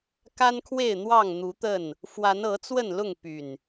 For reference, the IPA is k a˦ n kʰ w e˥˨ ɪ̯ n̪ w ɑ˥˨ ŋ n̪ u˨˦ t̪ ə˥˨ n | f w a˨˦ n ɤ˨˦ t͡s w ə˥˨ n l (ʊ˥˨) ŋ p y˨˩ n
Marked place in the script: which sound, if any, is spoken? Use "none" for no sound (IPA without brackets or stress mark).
ʊ˥˨